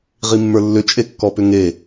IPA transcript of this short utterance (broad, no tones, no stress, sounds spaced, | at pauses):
ʁ i mː ə˞ lː ʏ t͡ʃʼ e kː ɔ p ʏ ŋ e